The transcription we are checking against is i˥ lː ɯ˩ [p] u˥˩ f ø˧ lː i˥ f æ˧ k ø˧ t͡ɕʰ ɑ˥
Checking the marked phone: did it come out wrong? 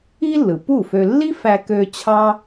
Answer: no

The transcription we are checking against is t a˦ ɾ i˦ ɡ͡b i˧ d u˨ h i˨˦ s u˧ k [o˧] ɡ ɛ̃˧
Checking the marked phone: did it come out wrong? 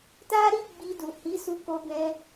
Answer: no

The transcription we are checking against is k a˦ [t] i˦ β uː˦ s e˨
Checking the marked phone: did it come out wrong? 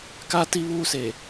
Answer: no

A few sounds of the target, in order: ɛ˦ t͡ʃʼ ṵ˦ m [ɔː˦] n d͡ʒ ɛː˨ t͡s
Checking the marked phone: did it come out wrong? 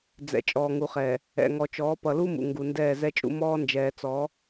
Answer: no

